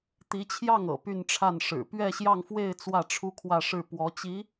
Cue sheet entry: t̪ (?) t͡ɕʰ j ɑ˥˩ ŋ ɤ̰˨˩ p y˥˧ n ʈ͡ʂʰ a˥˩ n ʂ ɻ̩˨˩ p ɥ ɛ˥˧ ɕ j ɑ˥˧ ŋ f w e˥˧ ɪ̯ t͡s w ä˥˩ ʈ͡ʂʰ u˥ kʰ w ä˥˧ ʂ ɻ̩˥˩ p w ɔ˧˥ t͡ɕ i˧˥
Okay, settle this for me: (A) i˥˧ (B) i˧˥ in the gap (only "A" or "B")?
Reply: B